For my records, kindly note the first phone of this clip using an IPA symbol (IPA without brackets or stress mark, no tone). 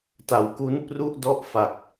t